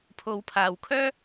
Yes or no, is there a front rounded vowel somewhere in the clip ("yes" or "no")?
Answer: yes